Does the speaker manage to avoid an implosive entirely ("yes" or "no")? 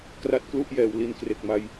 yes